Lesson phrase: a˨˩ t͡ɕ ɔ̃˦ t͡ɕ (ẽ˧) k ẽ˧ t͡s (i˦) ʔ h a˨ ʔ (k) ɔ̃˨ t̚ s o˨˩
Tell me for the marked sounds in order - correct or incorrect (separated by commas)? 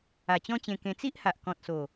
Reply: correct, correct, correct